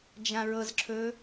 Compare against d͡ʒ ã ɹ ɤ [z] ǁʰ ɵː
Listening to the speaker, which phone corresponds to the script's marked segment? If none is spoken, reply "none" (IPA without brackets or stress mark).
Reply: z